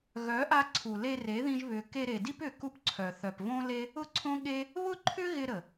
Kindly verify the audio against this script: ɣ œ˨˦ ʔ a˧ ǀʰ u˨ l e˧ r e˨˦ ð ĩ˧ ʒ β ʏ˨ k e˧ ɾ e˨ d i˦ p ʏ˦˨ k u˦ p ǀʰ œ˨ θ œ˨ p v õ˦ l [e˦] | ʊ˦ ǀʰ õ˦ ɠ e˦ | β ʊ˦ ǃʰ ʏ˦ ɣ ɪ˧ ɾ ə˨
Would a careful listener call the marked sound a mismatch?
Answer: no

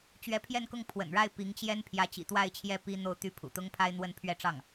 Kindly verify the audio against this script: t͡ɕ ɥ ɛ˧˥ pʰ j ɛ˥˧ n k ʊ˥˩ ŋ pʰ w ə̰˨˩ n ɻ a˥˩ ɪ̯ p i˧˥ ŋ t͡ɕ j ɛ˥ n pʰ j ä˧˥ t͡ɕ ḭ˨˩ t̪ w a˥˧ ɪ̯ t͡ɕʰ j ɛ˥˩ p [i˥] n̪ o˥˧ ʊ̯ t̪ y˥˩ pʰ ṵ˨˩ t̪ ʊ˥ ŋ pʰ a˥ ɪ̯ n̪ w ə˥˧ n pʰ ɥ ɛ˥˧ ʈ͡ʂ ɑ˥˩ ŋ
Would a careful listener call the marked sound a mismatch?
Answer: no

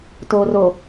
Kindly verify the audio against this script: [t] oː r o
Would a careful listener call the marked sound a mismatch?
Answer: no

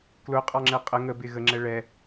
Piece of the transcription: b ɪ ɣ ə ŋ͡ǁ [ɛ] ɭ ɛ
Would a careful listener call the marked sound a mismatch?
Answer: no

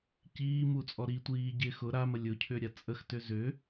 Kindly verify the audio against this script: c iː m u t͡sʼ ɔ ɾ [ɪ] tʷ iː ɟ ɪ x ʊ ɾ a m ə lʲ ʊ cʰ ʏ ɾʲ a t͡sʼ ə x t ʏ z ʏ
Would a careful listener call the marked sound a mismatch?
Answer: yes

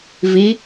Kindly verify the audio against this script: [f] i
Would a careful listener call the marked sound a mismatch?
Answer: yes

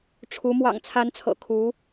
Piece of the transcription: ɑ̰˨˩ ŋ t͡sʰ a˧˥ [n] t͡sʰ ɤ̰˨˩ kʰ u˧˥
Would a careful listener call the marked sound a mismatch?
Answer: no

